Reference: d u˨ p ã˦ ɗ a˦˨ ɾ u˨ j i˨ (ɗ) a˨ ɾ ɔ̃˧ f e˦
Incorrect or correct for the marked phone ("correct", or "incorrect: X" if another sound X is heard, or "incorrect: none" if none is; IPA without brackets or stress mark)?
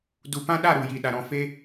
correct